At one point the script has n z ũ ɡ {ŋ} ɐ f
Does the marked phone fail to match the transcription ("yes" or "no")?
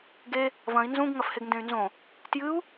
no